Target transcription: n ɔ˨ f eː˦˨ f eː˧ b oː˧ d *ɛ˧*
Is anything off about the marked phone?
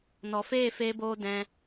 yes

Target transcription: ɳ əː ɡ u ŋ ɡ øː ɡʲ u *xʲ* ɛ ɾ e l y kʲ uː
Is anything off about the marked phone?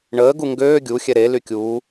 no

